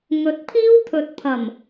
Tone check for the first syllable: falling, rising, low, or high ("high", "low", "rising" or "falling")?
rising